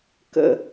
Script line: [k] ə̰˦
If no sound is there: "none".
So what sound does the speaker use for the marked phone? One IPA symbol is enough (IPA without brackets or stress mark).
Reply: k